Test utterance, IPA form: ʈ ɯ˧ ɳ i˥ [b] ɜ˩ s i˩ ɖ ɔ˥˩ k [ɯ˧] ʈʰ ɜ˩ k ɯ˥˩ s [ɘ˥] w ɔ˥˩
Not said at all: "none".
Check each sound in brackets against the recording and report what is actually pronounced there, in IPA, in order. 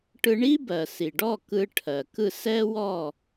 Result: b, ɯ˧, ɛ˥

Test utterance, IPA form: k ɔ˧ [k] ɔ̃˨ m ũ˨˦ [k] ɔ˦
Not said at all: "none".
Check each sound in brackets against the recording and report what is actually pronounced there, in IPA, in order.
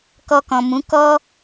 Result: k, k

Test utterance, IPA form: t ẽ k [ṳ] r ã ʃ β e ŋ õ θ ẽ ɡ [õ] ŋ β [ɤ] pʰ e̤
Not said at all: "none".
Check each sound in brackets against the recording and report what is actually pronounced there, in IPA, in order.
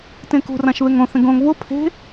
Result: ṳ, õ, o

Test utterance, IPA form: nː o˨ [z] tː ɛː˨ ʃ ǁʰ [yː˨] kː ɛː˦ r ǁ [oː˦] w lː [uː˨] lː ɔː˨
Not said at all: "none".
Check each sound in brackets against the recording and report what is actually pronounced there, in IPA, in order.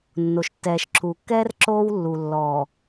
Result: ʃ, uː˨, oː˦, u˨

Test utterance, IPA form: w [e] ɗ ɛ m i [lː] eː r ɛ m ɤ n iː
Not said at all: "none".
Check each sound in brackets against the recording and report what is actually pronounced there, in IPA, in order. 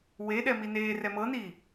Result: e, n

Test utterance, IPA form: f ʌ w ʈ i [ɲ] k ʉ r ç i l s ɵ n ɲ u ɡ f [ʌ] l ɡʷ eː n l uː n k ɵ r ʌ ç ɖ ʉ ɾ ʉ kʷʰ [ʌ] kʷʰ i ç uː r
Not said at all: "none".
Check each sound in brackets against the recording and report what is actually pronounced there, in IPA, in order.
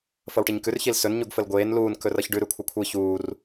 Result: ɲ, ə, ʌ

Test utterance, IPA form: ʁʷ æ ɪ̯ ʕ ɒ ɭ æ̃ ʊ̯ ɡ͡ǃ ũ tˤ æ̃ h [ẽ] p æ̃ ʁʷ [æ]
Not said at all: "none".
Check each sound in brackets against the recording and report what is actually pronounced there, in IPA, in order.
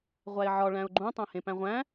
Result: ẽ, æ̃

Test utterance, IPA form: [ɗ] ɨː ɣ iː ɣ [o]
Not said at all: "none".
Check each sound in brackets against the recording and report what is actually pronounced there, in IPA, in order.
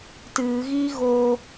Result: t, o

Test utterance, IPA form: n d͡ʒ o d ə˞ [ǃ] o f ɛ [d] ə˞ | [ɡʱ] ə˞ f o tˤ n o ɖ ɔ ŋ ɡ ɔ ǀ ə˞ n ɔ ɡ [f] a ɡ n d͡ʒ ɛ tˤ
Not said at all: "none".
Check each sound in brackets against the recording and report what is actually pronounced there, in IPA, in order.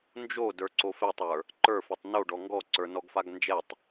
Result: ǀ, tˤ, ǃ, f

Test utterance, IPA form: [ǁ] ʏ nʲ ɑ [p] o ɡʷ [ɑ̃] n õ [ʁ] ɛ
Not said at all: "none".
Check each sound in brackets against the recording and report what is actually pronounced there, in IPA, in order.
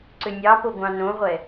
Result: ǀ, p, ɑ̃, ʁʷ

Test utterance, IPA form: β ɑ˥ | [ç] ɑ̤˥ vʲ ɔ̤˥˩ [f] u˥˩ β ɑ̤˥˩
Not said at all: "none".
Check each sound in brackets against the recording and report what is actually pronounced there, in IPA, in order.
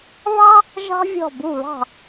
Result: ʒ, b

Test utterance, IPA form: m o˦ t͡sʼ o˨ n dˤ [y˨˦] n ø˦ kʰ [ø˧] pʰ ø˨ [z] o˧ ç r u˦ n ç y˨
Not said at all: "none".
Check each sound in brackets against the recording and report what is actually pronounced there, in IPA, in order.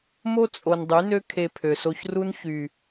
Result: y˨˦, e˧, s

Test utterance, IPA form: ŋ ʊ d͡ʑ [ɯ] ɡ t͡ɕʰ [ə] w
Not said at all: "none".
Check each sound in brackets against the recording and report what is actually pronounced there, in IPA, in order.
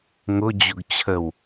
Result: ʊ, ə

